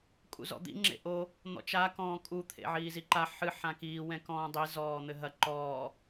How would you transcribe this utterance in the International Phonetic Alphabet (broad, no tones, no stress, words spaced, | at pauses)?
kʼṵzɔ̰d̪ḭ ŋ͡ǁḛʔo | n̪ɔ̰t͡ʃa kɔ̃ːkʼu t̪ʰḛʕiːziǃa ħɨ ħãkiː wɛ̃kɔ̃ːdˤi zɔːn̪ɘɦɐ ǃɔː